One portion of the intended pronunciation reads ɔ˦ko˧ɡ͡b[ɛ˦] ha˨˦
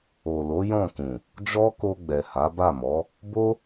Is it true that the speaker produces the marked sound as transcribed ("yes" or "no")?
no